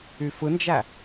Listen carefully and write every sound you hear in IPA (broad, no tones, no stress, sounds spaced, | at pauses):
y f ɯ n d͡ʒ æ